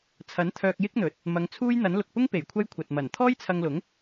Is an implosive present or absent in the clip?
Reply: absent